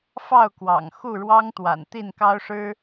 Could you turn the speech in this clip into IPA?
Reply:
fɑ˥˨ʊ̯kwɑ̰˨˩ŋ xu˥˨ɻwɑ˦ŋt̪wa̰˨˩n t̪i˥˨nkɑ˦ʊ̯ʂɻ̩˦

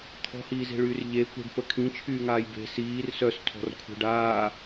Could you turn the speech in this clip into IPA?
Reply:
t̪ʰɔ̤hiːze̤ɭyːr ʎe kʷə̤ɖpə kʰĩt͡ʃʰyːŋaːj be̤ siːr sœstʰɔ̤rkʷʰe̤ɖ aː

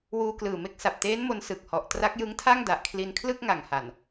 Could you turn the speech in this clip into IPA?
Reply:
wuː˧klɯː˨˩me˦˥k̚ sa˨˩p̚teː˦˥n mo˦˥n sɯ˨˩k̚hɔ˨˩ʔ tra˦˥k̚jɯ˦˥ŋtʰa˥˩ŋ da˨˩ʔkʰli˧nkʰlɯ˥˩k̚ ŋa˨˩ŋ ha˨˩n

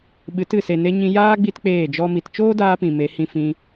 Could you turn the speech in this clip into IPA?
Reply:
ɓɨ˨˦tɨ˨se˨ ne˧ɲĩ˧jaː˦ ɡ͡bi˦tk͡peː˦˨d͡ʒɔ˦mi˧t t͡ʃoː˦daː˧ pĩ˨me˨˦hĩ˧fĩ˧

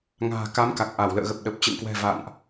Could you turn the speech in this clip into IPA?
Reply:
ŋa̤ː˨˩ka˨˦m ka˨˩k̚ʔa˧˩w lə̰ː˧˨ɣə˨˩p̚ ɗə˨˩p̚ t͡ɕɨ̰˧˨ŋkwɛ̤˨˩ va̰˧˨nʔ

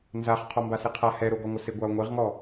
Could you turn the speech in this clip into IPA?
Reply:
nzaχ qʰɔmbaseqʰa hɛɾoɡɔŋʷɪ sɪ ɡʷao̯ŋʷeʁŋɔ

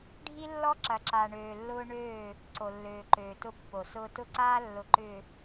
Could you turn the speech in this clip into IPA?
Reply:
ɖʱi˦lːɔ˦ǁɐ˨ǁa˨ ɳøː˨lːʊː˦ ɳøː˦˨ | ǀo˨lːøː˨ǃøː˨ tʊ˦pːo˨sʊː˦ tʊ˦ǀaː˦lːʊ˨ǃʏː˨

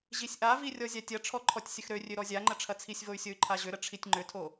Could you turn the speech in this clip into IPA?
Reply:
ʑisʲʔavi rʲɔzʲatʲɐʈ͡ʂʰɔ ǃʰɔtʲsʲəxɾørʲø ɾɔzʲaŋ͡ǃə ʈ͡ʂʰɐt͡sʰisʲvoy̯ sʲoy̯ǃʰaʑʏɾə ʈ͡ʂʰitʲŋ͡ǃʏtʰo

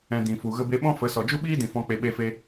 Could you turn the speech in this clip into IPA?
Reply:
ɛ̃˧ dĩ˨ fu˨ ɣə˧be˧ɓɔ̃˦fə˨˦ sɔ˨d͡ʒu˦ɓiː˦dĩ˨ fɔ̃˦k͡pe˧ ɓe˧fe˧

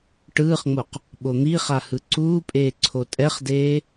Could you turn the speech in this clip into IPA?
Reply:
ʈɯːχŋ͡moq | ɓon̪iχa hɯǀuːpʼeː ǀʰotʼɛχdeː

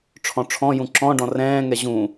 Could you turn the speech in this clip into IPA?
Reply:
ʈ͡ʂʰɔ̃ʈ͡ʂʰɔ̃jũ ǁɔ̃ɖɔ̃ rɛ̃ːŋɛ ʑũ

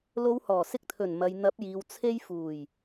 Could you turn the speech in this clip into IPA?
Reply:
lo˨˧whɔː˨˩ sɪ˧k̚t̪ʰɵ˨˩n mɐ˨j n̪ɐ˨˥p̚jiː˨w t͡sʰe˧jfuː˨˩j

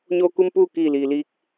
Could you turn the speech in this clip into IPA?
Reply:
ɲoː˧ku˧m puː˥˨kiː˧˩liː˩liː˧˥k̚

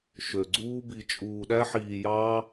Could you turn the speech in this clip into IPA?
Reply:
ʃø˨ ɡ͡ǀuː˦bi˧t͡ʃʼuː˧ ɗæ˦ħiː˧jɑː˦

